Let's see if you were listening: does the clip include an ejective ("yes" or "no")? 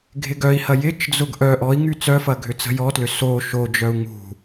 no